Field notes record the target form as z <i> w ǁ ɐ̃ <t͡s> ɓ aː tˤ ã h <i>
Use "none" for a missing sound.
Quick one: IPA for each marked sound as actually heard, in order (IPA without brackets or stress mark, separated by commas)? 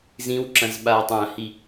ĩ, z, i